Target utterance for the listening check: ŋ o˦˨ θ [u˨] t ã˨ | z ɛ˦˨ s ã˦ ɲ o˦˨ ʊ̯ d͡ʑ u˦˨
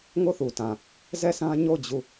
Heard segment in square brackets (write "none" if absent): u˨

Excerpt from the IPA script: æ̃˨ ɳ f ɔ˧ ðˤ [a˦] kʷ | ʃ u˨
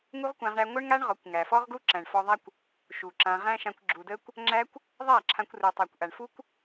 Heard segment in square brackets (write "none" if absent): a˦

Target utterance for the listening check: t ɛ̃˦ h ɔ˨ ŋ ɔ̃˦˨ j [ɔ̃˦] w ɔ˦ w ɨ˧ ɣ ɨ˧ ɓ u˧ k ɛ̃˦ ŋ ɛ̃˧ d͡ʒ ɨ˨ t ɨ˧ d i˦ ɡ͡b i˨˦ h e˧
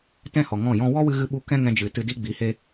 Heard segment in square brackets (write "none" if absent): ɔ̃˦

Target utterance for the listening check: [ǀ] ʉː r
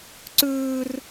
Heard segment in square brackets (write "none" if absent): ǀ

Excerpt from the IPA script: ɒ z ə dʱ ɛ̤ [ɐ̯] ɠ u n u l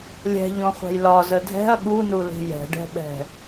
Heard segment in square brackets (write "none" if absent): ɐ̯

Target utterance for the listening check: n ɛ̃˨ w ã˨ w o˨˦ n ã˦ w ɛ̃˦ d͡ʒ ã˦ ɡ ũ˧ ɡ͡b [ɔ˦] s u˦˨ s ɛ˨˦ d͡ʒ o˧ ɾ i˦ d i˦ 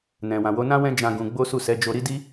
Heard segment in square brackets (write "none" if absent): o˦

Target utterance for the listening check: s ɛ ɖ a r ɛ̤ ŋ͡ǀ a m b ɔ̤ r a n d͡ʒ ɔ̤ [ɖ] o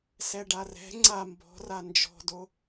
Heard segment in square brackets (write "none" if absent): d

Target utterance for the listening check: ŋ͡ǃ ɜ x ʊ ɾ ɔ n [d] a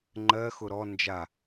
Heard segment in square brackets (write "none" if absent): d͡ʒ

